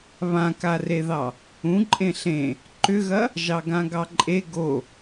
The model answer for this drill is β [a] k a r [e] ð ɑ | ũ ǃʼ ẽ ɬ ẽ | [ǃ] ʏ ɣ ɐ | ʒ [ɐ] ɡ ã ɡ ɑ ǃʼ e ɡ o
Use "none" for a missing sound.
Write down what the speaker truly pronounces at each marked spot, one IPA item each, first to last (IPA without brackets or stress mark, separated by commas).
ã, e, ǃ, ɑ